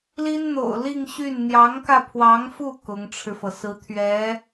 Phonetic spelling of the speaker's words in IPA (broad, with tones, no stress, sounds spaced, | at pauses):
l i˥ n n̪ o̰˨˩ ʊ̯ l i˥˧ ŋ ɕ y˥˩ n n̪ j ɑ˧˥ ŋ k ä˧ pʰ w ɑ˧˥ ŋ f u˥˩ k ʊ˧˥ ŋ ʈ͡ʂʰ ɻ̩˧ f ɤ˩ s ɹ̩˧˥ t̪ʰ ɥ ɛ˧˥